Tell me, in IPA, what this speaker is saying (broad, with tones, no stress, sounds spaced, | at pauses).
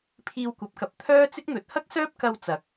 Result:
pʰ iː˧ w kʷ ɐ˨˥ p̚ k ɐ˨ p̚ t̪ʰ œː˥ t͡s ɪ˥ k̚ n̪ ɵ˨ t̚ h ɐ˥ k̚ s œː˥ p̚ k ɐ˧ w t͡s ɐ˨˥ k̚